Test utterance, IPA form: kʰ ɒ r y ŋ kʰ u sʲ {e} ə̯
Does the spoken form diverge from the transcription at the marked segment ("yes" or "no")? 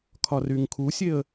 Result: no